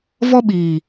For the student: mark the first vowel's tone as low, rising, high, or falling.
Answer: high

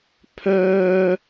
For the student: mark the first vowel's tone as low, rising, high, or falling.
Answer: high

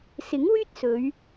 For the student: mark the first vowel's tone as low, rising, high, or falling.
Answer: rising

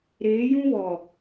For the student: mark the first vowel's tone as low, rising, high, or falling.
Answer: rising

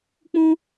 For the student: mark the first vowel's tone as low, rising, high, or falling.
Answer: high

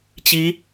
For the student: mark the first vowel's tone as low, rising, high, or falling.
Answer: rising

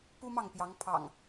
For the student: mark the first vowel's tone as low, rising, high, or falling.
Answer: high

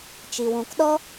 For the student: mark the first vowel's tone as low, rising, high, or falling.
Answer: low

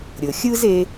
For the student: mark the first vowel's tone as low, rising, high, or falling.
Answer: low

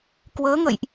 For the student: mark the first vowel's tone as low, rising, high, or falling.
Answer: rising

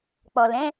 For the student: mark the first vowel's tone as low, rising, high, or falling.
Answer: low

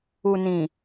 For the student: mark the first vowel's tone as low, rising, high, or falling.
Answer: low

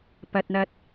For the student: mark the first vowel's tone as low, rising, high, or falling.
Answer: low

